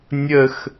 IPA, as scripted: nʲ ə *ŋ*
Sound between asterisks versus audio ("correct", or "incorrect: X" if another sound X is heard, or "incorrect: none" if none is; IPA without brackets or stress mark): incorrect: x